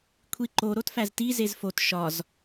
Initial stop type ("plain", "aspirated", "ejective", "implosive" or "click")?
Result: aspirated